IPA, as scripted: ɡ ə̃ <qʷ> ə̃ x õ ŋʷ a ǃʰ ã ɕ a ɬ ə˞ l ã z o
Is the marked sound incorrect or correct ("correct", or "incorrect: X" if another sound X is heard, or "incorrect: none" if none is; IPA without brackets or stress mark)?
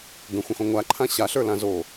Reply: incorrect: xʷ